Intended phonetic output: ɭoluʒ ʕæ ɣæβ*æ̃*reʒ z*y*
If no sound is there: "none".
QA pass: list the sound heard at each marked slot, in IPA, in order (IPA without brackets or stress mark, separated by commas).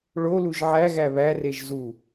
æ, u